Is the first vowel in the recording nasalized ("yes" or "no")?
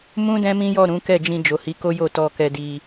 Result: yes